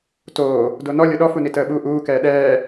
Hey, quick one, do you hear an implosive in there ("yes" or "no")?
yes